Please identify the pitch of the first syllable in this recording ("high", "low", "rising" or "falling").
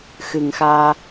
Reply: low